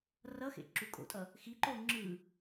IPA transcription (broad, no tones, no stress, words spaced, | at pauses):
rʌxḛ ǁukʼo̰tʼʌ | xiǃo ŋ͡ǁɯ